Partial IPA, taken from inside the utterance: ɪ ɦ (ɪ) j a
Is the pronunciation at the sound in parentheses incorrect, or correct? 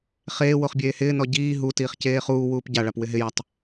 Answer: correct